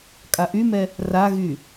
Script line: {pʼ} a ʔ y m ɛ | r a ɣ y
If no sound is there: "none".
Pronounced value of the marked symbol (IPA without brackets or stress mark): kʼ